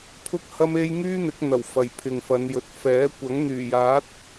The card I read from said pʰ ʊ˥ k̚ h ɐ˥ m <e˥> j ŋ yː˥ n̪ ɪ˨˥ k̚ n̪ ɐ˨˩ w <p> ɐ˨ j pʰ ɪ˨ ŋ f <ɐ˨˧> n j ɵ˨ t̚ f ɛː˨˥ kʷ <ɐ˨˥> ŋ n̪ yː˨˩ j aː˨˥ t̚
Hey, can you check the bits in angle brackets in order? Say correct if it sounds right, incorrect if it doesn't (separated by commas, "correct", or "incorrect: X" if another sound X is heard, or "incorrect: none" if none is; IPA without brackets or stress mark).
correct, incorrect: f, correct, correct